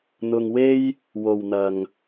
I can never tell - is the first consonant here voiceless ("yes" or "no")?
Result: no